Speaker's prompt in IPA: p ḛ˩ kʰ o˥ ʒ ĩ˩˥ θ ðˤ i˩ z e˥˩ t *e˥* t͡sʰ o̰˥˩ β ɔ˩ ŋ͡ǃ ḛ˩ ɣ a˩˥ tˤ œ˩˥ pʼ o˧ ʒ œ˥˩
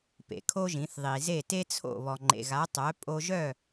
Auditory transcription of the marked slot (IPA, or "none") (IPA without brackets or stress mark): e˥